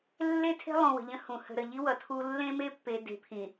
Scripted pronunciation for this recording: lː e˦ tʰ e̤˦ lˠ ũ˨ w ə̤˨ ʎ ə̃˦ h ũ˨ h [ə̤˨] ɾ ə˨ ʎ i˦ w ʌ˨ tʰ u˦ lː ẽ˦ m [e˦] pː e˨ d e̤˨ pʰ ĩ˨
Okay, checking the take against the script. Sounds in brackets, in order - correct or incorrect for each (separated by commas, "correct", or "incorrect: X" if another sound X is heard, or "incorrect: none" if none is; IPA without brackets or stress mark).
correct, correct